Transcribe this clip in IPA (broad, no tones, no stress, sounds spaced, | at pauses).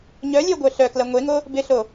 ɲ œ lʲ œ ɡʷ œ ɬ œ k l ɐ ŋʷ e ŋ o | b ɪ ɬ o